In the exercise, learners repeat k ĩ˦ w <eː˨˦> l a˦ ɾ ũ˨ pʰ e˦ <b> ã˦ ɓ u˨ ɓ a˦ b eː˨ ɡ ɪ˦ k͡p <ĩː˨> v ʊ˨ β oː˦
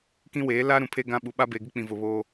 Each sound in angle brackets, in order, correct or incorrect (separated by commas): correct, incorrect, incorrect